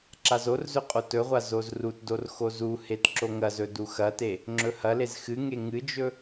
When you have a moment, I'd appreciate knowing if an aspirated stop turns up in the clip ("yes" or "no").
no